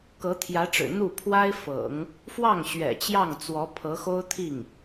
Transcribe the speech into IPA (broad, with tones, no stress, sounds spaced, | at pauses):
k ɤ˧˥ t̪ʰ j ä˧˥ ʈ͡ʂ ɻ̩˨˩ n̪ u˥˩ pʰ w a˥ ɪ̯ f ɤ̰˨˩˦ ŋ | f w ɑ˥˩ ŋ ɕ ɥ ɛ̰˨˩ t͡ɕ j ɑ˥˩ ŋ t͡s w ɔ˧˥ pʰ ɤ˧˥ x o˥ ʊ̯ t̪ʰ i˥˩ ŋ